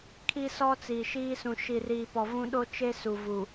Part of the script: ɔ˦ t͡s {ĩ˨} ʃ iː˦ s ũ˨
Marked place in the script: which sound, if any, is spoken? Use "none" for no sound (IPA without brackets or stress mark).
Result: i˨